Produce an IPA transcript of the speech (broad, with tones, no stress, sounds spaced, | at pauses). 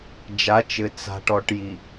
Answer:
d͡ʒ a˨˦ t͡ʃ ɘ˨ t͡s a̤˨ ʈ ɔ˨ ʈ j i˨